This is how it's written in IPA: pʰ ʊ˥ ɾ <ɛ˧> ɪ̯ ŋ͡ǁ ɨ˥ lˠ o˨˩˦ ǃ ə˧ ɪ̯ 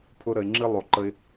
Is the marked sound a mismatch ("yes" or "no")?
yes